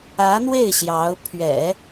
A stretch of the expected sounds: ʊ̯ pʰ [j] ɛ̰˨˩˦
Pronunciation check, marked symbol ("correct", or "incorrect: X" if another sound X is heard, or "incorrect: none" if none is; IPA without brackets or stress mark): incorrect: ɥ